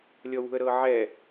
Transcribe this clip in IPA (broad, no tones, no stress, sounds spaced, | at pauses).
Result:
lʲ ɔ w ṳ ə̯ ɾ ɤː ʕ ɛ